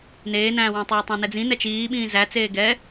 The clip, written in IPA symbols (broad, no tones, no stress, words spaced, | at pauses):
neːnæ̃ːwæ̃tˤɛː tˤæ̃nɛd͡zĩ nɛt͡ʃiːɓĩː zæt͡seː ɡɛ